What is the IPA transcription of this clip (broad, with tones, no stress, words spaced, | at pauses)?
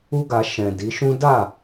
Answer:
u˦ɡa˧ ʃɛ̃˨ di˨˦ʃũ˦ da˦˨